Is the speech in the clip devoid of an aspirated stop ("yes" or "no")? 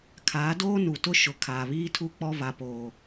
no